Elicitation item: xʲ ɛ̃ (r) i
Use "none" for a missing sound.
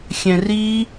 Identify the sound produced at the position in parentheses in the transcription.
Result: r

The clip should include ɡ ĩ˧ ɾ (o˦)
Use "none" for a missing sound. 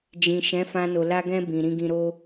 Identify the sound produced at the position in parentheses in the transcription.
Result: o˦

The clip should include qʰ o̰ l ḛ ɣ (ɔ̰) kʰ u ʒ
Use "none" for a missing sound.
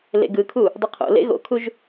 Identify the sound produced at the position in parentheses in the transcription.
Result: o̰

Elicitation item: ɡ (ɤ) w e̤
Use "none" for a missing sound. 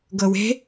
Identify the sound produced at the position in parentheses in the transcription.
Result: ɤ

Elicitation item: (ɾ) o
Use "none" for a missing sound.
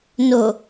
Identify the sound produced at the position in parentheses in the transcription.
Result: n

